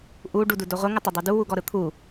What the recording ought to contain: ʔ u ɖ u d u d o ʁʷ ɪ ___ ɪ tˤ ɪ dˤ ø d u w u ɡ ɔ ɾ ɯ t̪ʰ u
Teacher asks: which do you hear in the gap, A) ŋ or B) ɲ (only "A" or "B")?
A